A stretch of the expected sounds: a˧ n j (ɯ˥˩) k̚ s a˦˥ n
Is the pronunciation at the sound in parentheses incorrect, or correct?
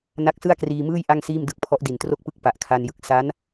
incorrect